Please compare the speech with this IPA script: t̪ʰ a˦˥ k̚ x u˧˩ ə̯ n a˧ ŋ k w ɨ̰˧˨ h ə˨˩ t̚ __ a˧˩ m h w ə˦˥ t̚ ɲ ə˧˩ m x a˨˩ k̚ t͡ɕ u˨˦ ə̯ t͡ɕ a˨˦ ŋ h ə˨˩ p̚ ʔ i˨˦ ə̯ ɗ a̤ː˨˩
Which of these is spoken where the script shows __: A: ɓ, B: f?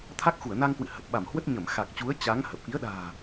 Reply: A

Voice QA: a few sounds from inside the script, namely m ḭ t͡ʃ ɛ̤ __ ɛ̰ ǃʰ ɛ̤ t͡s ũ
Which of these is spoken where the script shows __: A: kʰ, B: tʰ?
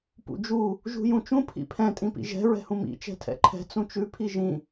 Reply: B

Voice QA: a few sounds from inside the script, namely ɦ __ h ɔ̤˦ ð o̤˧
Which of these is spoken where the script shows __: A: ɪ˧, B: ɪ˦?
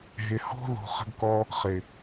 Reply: A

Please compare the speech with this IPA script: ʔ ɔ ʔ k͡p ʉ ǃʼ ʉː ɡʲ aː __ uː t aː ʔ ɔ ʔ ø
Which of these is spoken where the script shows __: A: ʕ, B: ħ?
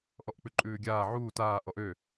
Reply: A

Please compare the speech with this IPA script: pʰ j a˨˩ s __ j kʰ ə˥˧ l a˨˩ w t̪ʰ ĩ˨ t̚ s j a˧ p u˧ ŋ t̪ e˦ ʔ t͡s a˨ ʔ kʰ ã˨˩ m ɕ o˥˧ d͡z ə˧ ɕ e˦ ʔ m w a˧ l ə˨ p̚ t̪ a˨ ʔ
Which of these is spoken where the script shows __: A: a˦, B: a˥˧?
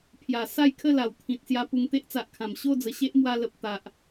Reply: B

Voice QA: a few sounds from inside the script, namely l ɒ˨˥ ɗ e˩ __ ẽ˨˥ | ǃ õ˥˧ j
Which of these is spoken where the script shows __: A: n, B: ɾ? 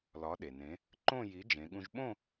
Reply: A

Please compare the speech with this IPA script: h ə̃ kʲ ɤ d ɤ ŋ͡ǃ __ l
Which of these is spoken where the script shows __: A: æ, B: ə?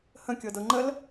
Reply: B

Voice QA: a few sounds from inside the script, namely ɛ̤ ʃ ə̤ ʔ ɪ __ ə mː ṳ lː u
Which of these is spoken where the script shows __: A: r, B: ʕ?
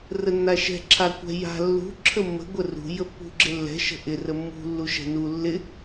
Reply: A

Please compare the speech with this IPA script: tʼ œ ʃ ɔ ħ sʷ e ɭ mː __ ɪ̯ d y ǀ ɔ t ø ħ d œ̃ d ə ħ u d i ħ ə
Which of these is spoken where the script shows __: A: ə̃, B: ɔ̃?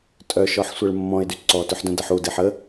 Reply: B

